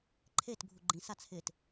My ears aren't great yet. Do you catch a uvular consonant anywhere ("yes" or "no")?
no